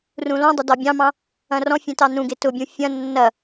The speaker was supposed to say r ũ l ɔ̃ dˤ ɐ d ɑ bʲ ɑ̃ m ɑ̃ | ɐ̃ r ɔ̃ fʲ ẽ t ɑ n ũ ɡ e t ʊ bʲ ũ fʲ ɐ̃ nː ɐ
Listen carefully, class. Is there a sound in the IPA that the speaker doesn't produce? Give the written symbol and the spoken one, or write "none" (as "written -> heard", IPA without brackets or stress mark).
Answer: none